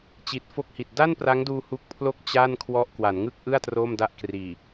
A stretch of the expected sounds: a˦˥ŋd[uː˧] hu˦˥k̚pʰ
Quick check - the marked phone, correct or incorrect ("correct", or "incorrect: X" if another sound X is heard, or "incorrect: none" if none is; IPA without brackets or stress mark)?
correct